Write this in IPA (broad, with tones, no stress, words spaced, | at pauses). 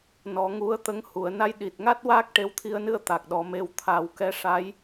nɔ˨˩˦ ŋu˧˥ə̯t̪ə˧˥ŋhu˨˩˨ə̯ na˧jɗi˨˩t̚ŋa˦˥t̚waː˦˥k̚ ʈe˧˥wt̪ʰi˧ə̯nɨ˧ə̯ t̪a˨˩k̚ɗɔ˨˩˦ me˧˥w t̪ʰa˨˩˦wkɛ˧ ʂa˧˥j